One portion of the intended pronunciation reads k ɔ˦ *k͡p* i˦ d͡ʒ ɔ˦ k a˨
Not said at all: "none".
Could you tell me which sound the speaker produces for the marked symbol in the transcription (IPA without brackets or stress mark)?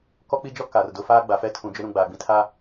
k͡p